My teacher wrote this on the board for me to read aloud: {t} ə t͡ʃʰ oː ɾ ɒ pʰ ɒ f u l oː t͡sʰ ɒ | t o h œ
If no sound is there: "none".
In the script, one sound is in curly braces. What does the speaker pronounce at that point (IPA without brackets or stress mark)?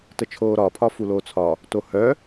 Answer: t